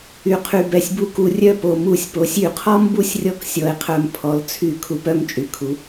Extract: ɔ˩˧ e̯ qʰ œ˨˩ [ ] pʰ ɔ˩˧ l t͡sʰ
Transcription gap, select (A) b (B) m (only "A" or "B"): B